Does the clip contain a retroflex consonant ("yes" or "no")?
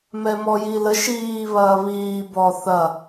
no